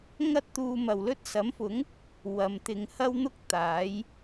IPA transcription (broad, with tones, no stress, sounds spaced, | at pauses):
ŋ ɐ˥ t̚ t̪ uː˧ m ɐ˨ w l ɵ˥ t̚ s ɐ˨˥ m f ʊ˨˥ ŋ | w ɐ˨˧ m t̪ ɪ˨˧ ŋ h ɐ˥ w n̪ ʊ˥ k̚ t̪ aː˨˥ j